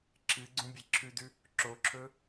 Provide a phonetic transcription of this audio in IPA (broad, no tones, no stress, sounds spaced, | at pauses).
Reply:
ǁʰ ɨ ɡ͡ǀ ũ bʲ e ǁʰ ʉ d ʉ | ǁ o ǁʰ ɵ